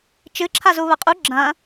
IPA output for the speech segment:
t͡ʃɨǁʰa zuβɐqʼu ɡ͡ǁɐ̃

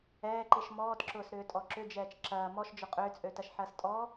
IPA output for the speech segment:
ɛːǃiʃ mɔːtǁʊːsɾʏːtʼɔ ǁʏd͡ʒɛːt͡ʃ ǁɐː mɔʃd͡ʒʊ qʼʏːt͡sʼøtɐʃħɐːs tʼɔ

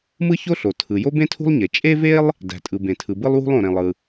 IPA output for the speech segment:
mɯ˥ço˥ɬo˩ tʰɯ˩ jo˥bẽ˥tʰṳ˥lˠɲe˩ t͡ʃʼe˥ve˥lˠ | dæ̤˩tʼɯ˩ bẽ˩tʰɯ˩bɯ˥lˠwṳ˥lˠ õ˩ɾẽ˩lˠɯ˩

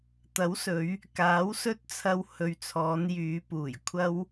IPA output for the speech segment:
t̪ɐ˨˥wsɵ˨˧ɥ | kaː˨˥wsɵ˥t̚t͡sʰɐ˧w hɵ˨ɥt͡sʰɔː˨˧n jyː˨˧puː˨˩jkʷʰɐ˥w

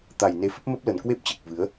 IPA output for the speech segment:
t̪a˨˩jne˨˦fə˦˥p̚ mə˦˥p̚lə˨˩nkwe˦˥p̚t͡ɕe˨˩k̚ vɨ˨˦ə̯

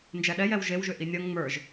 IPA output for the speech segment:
nd͡ʒɛɗɛjɛw ʒewʒʏ ʔinʲʌŋ ŋ͡mə˞ʒ

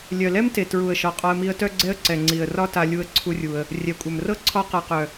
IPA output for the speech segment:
lʲœ˩lɛ˥mte˩ tɹu˩ə̯ʃɒ˩ qʼɒ˧ə̯mi˧ə̯tœ˥ɡ͡ǀɛ˥ə̯ ǀɛ˩ŋ͡ǀi˩ə̯rɒ˥ta˧ lʲu˧ə̯ǀʰu˧rʲu˩ə̯ | rʲɛ˩kʷʼœ˩mrɤ˥ ǀʰɒ˥qa˧qœ˩

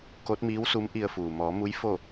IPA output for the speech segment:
ko˧˥t̚miː˧˥wsu˧˥m ʔi˧ə̯fuː˩ mɔː˩˧mu˧˥j fo˥˨

